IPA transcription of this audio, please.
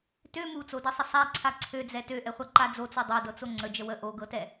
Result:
t ø m u t͡s o d ɤ sˤ ə sˤ a ǀʰ a ǀʰ ø d͡z ɛ t ø ʔ ɛ χʷ a ǃ a d͡z o t͡s u dˤ o d ɤ t͡s o ŋ͡ǀ ə d͡ʒ ə w ə ʔ o ɡ ɤ t ɛ

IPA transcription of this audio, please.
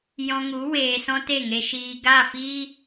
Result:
j ɔ̃˧ ŋ u˨˦ w eː˧ s ɔ̃˦ t e˦˨ ŋ e˧ ʃ iː˧ ɡ a˦˨ f i˦

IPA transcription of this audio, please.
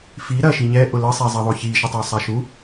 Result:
f i ɾ ɐ ʃ i ɲ ɛ ʔ ʊ l ə sˤ ɛ zˤ ɐ ðˤ o ç i ʃ ɐ tˤ o sˤ a ʃ u

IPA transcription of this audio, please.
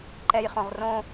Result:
ǃ ɛ j χ õ ʁ r õ

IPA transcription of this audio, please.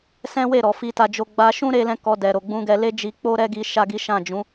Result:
s ɛ̃˦ w e˦˨ ɾ ɔ˨ f i˧ t a˧ d͡ʒ o˧ ɡ͡b a˦ ʃ ũ˦ ɾ e˧ l ɛ̃˧ k ɔ˧ d ɛ˨ ɾ o˨ ɡ͡b ũ˧ ɡ ɛ˧ l e˦ d͡ʒ i˧ k͡p o˦ ɾ ɛ˦ ɡ i˧ ʃ a˦ ɡ i˦ ʃ ã˦˨ d͡ʒ ũ˨˦

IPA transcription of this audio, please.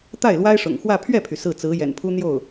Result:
t̪ a˥˩ ɪ̯ l w a˥ ɪ̯ ʂ ʊ̰˨˩ ŋ x w ä˥˧ pʰ ɥ ɛ˥˩ pʰ y˩ s ɹ̩˥˩ t͡s ɹ̩˧˥ j ɛ̰˨˩ n pʰ u˥ n̪ j o˥˩ ʊ̯

